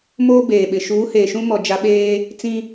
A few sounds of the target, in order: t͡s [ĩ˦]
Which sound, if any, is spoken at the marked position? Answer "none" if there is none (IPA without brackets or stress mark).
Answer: ĩ˦